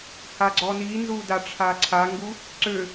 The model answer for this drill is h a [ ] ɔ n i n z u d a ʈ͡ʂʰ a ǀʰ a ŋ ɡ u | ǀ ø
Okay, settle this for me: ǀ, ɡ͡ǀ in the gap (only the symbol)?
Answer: ɡ͡ǀ